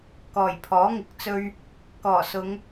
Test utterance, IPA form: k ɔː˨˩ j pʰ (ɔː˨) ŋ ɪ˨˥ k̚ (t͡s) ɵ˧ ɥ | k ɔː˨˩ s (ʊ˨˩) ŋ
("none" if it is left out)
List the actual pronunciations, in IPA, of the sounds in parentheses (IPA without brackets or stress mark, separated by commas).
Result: ɔː˨˥, t͡s, ʊ˨˧